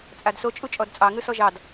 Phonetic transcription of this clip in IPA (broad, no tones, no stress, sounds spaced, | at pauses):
t͡sʼ a d s o t͡ʃʼ u t͡ʃʼ ɔ d t͡sʼ ɑ ŋ ɯ s ɔ ʒ ɑ d